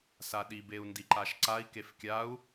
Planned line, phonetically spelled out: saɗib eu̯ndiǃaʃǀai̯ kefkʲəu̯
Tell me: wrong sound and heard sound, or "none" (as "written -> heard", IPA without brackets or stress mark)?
ə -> a